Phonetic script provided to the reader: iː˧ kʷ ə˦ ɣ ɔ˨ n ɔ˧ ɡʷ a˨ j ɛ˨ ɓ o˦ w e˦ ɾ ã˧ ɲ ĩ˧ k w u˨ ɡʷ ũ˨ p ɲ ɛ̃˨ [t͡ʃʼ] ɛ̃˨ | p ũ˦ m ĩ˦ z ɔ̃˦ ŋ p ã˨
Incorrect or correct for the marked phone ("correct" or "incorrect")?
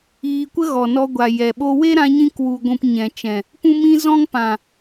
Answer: incorrect